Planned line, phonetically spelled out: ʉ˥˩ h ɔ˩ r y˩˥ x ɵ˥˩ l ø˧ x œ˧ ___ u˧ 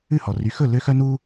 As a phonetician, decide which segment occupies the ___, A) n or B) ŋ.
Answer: A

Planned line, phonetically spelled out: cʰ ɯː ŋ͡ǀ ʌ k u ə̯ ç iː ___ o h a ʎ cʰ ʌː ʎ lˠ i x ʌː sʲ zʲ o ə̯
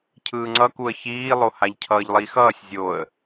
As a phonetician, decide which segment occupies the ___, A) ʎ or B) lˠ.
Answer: B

